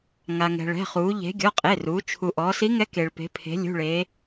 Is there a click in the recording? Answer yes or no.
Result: no